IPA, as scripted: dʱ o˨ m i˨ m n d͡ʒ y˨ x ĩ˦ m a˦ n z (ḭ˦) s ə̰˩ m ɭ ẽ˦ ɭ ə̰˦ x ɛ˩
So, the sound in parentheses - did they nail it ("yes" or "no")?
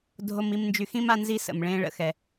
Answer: no